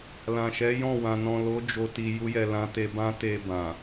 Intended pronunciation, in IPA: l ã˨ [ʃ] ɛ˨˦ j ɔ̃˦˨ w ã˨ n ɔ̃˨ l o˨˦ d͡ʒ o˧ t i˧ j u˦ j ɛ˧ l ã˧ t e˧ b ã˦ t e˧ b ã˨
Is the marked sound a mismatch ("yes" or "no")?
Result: no